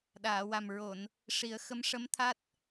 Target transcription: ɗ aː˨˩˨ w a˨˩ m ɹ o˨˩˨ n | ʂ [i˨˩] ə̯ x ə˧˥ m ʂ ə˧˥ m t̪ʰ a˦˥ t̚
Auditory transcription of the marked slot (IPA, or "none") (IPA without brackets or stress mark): i˨˩˦